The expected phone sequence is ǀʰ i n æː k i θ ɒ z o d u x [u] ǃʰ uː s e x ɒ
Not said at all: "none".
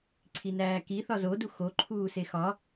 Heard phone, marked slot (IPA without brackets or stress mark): o